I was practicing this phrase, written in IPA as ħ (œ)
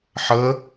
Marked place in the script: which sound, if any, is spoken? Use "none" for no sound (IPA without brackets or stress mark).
ə